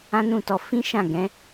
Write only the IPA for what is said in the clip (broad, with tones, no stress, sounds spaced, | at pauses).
ã˦ n ũ˦˨ t ɔ˧ f ĩ˦ ʃ ã˦˨ ɡ ɛ̃˨˦